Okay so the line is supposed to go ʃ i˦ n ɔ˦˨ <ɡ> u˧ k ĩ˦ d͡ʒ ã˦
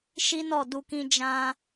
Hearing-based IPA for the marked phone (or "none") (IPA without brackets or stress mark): d